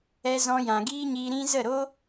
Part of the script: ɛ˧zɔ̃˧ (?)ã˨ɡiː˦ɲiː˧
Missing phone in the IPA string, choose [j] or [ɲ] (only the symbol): j